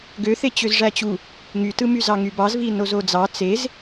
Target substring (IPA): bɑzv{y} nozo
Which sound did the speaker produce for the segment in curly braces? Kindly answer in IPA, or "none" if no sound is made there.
i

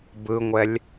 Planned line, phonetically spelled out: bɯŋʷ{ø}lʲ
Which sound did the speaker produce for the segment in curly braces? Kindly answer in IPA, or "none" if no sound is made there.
ɛ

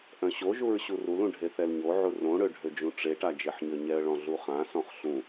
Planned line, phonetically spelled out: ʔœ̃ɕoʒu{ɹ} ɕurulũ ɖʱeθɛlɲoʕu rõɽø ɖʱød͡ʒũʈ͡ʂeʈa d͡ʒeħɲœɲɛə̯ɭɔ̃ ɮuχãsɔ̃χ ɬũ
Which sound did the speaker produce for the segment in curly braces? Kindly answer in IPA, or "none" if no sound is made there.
ɹ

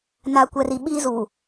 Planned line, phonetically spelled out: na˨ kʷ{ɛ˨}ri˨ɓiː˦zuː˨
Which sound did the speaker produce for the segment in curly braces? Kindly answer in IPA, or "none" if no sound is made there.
ɛ˨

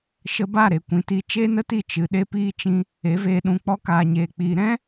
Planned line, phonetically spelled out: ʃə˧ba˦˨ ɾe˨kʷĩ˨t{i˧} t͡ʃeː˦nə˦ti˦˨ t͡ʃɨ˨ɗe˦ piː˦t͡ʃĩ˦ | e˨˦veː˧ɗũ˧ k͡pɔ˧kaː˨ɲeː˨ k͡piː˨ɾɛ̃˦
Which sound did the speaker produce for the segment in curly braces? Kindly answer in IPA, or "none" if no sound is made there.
i˧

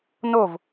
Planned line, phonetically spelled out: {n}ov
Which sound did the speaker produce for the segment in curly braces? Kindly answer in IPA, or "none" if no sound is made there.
n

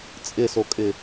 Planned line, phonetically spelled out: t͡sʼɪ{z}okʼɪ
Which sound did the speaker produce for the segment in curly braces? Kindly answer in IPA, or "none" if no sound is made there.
s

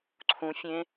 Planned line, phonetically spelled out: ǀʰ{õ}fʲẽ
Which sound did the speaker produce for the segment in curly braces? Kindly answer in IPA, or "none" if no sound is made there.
ũ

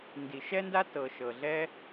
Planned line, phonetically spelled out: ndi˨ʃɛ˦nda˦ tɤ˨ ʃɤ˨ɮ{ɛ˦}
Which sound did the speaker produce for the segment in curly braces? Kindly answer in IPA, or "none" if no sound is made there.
ɛ˦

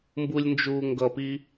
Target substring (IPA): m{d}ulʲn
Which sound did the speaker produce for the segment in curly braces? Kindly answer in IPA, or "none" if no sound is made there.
b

